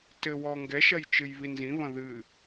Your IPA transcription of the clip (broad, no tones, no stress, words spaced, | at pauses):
tɘ wɔŋɡɛʃɐj t͡ʃɨjβinzĩβɐ̃ ðɨ